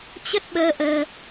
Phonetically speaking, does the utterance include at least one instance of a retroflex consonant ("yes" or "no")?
no